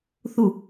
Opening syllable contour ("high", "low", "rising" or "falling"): falling